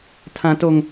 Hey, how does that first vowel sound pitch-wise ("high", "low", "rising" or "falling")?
high